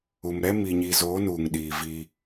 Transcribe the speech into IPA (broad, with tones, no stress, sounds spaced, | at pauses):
u˨ m ɾ ɛ˦ m i˨ ɲ i˨ z oː˨˦ n uː˨ ŋ ɗ iː˨ v i˦